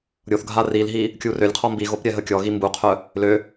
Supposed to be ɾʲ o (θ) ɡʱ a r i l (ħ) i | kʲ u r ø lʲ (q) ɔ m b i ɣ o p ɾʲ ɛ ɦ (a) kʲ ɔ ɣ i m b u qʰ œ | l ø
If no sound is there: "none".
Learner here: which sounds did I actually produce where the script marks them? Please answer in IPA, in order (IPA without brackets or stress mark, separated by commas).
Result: θ, ɦ, qʰ, ə